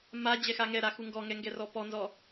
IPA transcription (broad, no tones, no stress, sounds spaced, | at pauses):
m a d͡ʑ ɛ x a ŋ ɛ ɾ a x u ŋ ɡ ɔ ŋ ɛ ŋ ɡ ɛ r ɔ p ɔ n z ɔ